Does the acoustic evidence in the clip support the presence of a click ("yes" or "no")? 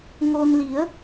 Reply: no